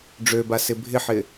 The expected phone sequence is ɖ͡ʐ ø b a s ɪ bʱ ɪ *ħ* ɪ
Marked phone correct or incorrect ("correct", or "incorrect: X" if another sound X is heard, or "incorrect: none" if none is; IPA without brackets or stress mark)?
correct